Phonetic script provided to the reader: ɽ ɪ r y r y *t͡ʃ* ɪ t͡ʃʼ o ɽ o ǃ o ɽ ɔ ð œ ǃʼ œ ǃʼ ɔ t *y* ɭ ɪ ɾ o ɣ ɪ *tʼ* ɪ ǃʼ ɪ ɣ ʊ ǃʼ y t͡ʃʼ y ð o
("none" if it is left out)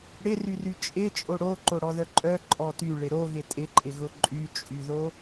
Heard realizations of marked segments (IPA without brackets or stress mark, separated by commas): t͡ʃʼ, y, tʼ